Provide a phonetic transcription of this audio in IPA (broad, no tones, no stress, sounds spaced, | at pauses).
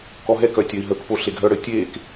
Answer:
k ɔ ɦ ɛ k œ tʲ œ i̯ ɦ ə k p o ɬ e ɡʱ œ ɽ ə tʲ e k